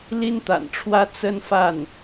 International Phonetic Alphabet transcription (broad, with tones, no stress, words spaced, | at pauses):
li˥nt̪a̰˨˩nʈ͡ʂʰwä˥ t͡sə˥nfa˥˩n